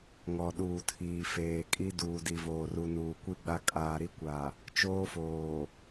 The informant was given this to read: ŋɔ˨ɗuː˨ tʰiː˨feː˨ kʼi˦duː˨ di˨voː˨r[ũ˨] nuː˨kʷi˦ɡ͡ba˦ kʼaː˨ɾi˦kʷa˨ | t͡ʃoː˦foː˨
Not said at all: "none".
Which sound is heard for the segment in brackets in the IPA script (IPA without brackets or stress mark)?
u˨